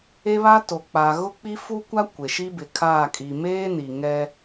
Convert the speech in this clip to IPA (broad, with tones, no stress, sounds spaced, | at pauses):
e˦ β a˦ t o˨ k͡p a˨ ɣ ʊ˦ k͡p i˦ f u˦ kʷ a˦ kʷ e˨ ʃ i˦ b ɪ˨ kʰ aː˦˨ kʼ i˨ m eː˦ n i˨ ŋ ɛ˦